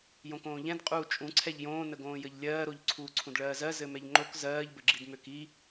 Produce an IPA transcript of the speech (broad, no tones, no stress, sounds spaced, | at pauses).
j õ k õː ʎ ɛ̃ d qʼ uː t͡ʃʼ ũ ǀʰ ɛ ʎ j õː n ə ɡ õː j ə ʎ lʲ ɜː ɾ o ʎ ǀʰ uː ǀʰ ũ d ɭ ɜː z ɜ z ɘ m ɛ ʎ ŋ͡ǃ o k z ɜː ʎ b ɘ ɡ͡ǁ i d m ø k i